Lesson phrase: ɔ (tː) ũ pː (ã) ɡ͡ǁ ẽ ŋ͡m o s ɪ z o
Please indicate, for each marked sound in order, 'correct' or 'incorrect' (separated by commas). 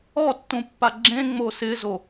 correct, incorrect